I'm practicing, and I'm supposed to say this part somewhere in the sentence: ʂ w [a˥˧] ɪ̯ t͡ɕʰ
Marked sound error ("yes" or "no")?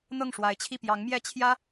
yes